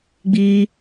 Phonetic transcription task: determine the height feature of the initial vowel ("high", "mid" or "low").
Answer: high